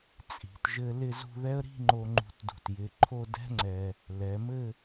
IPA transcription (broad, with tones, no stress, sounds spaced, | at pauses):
t͡sʼ i̤˩˧ t ʒ ɘ˧ l ɪ˥˧ z ṳ˥˧ ð ɛ˥ ə̯ ɾ i̤˥˧ ŋ͡ǃ o˧ ŋ͡ǃ ṳ˧ t d ṳ˧˩ t j ɪ˧ ǃʰ o˥˧ d ɛ̤˥ ŋ͡ǀ ɛ˧ | l ɛ˩˧ m ɘ˥˧